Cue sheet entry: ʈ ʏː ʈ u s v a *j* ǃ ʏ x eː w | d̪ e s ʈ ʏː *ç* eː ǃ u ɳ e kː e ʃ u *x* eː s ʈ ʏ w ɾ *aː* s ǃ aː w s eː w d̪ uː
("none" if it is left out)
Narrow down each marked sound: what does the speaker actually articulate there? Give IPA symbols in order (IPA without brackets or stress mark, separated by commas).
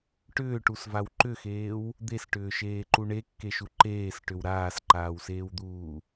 w, ʃ, ǃ, aː